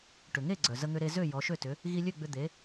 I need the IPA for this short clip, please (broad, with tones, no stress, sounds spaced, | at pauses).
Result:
ʈ ʏ˩ ŋ e˥˩ ɡ͡ǀ œ˩ z ə˧ ŋ ʏ˧ ɾ e˧ z ø˥˩ j ɔ˩˥ ʃ ø˥˩ t ʏ˩˥ | ɣ i˧ lʲ ø˥˩ ɡ͡b ʏ˧ d̪ e˩˥